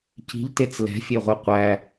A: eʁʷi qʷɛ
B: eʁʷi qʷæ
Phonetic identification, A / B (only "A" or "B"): B